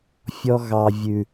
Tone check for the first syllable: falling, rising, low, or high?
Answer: high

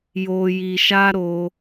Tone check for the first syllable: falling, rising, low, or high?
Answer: high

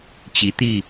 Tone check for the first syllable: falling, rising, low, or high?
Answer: rising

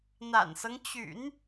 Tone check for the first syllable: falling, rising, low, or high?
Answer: low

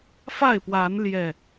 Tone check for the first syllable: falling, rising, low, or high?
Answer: falling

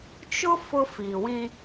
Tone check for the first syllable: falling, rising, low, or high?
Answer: high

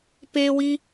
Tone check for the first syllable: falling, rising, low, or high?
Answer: high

